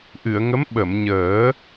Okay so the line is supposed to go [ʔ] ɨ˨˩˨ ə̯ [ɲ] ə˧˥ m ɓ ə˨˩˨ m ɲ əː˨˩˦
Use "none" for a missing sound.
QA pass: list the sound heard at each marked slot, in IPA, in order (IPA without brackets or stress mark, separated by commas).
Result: ʔ, ŋ